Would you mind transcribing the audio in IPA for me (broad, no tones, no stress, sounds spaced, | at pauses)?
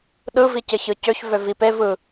ɗ ɯ v i c ɪ ç ɯ c ø ç v ø v i p e v ɯ